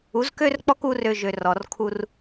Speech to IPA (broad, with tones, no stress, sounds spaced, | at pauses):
u˨˦ z k ø˦ r k͡p ɔ˦ k u˧ r ø˧ ʒ ø˨ r ɔ˨ r kʰ u˧ r